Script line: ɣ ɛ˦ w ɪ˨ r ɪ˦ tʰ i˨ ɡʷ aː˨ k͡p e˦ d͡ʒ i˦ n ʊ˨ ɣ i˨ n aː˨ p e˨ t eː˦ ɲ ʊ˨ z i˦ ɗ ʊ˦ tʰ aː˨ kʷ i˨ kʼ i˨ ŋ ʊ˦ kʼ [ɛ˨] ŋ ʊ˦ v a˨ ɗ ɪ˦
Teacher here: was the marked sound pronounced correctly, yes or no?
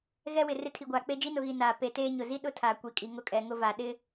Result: yes